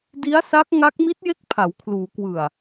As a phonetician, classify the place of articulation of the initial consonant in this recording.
alveolar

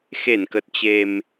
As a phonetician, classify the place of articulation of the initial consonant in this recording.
velar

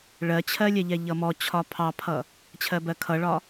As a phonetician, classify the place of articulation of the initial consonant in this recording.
retroflex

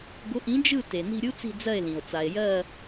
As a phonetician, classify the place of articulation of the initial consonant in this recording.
velar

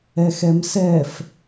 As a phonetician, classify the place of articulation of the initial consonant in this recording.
velar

